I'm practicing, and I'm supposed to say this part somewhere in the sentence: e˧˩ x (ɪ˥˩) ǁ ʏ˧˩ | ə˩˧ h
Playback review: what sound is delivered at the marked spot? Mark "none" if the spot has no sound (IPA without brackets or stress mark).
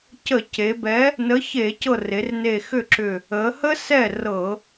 ʏ˥˩